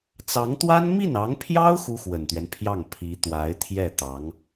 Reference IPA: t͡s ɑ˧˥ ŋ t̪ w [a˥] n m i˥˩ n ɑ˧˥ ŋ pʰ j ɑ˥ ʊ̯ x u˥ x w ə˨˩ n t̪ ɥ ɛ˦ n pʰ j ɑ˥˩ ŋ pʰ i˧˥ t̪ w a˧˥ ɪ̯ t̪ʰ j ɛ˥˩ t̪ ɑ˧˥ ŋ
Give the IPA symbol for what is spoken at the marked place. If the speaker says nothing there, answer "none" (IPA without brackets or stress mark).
a˥